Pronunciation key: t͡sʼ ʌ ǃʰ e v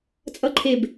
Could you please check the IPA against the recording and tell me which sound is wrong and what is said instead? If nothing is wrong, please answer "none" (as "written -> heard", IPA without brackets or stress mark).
v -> b